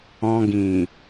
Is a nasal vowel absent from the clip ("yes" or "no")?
no